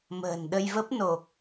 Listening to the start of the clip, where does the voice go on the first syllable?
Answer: low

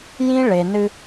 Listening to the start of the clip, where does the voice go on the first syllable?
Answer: high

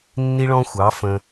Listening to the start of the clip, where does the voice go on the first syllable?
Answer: high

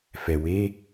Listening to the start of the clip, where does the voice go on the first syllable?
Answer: low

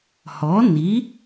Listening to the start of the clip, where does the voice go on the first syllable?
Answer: rising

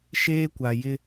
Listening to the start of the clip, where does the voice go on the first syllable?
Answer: high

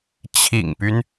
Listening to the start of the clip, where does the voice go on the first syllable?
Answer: low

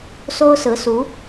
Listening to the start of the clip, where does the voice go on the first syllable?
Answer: high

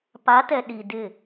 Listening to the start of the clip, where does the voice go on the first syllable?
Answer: rising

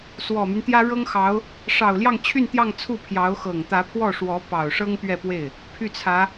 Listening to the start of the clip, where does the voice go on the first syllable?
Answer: low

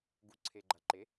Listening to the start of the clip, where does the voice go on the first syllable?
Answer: rising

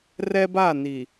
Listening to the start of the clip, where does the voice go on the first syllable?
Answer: high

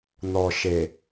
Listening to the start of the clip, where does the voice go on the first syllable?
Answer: low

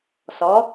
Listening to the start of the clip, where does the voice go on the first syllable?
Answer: rising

